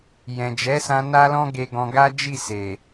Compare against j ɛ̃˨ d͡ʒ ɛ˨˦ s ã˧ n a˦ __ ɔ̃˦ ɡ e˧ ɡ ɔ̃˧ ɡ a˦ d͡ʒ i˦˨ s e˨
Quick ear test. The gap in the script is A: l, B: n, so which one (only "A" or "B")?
A